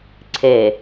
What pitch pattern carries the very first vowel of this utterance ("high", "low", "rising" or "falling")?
low